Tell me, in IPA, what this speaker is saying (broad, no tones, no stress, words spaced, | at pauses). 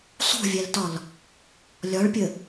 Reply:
sˤṳvʲæltɒl | lʲɒɭpʲə